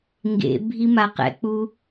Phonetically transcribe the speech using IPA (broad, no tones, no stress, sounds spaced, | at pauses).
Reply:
ŋ ɡ ḛ bʱ i m a q ɛ̰ k͡p u